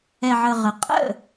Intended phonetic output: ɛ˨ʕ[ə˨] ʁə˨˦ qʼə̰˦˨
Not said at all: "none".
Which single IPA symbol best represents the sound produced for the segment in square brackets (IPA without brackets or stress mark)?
ə˨